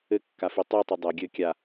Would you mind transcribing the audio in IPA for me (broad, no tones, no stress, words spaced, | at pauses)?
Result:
ɘkːafi tˤɨtˤɨ dˤɛ ɡʲɘ kʲa